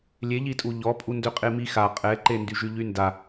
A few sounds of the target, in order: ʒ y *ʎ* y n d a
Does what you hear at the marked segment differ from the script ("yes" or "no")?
no